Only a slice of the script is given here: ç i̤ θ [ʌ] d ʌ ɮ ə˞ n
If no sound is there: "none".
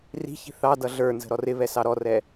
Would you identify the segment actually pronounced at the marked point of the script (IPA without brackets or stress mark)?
ɑ